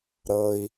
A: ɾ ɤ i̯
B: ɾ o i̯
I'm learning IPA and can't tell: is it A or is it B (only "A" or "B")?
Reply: A